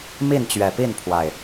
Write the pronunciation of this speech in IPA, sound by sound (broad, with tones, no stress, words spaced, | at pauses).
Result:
mi˥˨nt͡ɕɥɛ˨˩ pi˥˨npʰwa˨˩ɪ̯